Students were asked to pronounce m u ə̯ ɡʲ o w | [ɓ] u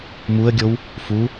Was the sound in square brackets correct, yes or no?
no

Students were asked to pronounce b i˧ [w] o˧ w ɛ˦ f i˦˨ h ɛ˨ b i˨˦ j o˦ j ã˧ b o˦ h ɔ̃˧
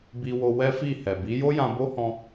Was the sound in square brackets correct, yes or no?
yes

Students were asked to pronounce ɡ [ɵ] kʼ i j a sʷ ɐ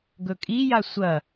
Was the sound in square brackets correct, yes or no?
yes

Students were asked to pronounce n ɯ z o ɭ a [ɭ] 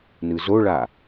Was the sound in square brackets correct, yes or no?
no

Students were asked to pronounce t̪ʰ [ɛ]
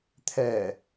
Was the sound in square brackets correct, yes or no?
yes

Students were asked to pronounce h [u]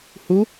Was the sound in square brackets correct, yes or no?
yes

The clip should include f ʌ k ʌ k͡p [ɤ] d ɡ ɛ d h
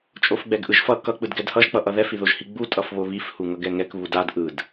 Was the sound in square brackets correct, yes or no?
no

